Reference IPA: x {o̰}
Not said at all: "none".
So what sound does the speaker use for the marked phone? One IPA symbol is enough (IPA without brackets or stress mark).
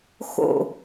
o̰